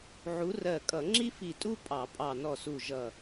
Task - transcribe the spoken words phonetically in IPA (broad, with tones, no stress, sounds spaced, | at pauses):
ʕ u˨˥ r ɜ˧˩ kʼ ʌ˧˩˧ ŋ͡ǁ i˥ f i˧˩ tʼ u˥ pʼ ɑ˧˩˧ pʼ ɑ˧˩ n ɔ˧˩ s u˧˩ ʒ ʌ˧˩